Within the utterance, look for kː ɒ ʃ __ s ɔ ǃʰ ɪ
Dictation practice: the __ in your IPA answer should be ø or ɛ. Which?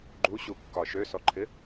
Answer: ø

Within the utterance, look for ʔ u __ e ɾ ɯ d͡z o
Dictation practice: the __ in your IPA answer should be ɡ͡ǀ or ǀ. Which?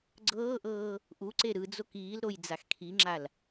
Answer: ǀ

